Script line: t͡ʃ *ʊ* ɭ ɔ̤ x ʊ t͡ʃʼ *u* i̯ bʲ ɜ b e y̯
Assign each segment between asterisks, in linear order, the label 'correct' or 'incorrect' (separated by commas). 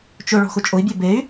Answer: correct, incorrect